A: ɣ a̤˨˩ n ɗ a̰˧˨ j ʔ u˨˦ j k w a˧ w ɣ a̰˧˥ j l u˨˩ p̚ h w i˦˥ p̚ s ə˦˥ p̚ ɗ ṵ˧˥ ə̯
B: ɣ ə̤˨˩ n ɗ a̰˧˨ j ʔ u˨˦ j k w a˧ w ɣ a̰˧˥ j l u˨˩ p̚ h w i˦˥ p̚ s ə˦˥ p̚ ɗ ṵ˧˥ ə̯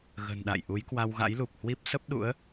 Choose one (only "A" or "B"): B